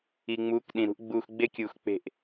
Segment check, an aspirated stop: absent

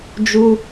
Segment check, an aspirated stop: absent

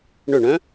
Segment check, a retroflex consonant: present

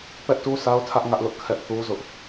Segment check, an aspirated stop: present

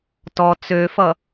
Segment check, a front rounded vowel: present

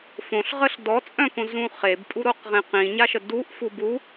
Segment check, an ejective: present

